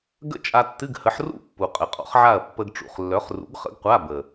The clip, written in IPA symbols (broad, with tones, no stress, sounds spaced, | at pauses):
ɡ ə̰˥˨ t͡ʃʼ a˧ tː ɨ˧˥˧ ɡ h ə˨˥ ħ r ṵ˥˨ pː u˨˩ qʼ ə˨˩ qʼ ɔ̰˨˥ χ ʕ a˥˨ ɐ̯ pː ə˧ ɡ ʈ͡ʂ ṵ˨˩ χ lː œ˨˥ χ r ṵ˨˥ ɡ χ ə̰˨˥ ɡ qʷ a˧˥˧ b ə˨˩